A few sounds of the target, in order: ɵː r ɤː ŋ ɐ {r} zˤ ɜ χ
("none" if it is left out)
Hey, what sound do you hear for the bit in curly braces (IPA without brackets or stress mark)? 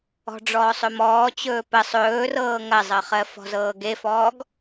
none